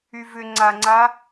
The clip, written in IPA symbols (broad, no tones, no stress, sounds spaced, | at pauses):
y v ʏ ŋ͡ǀ a ŋ͡ǀ a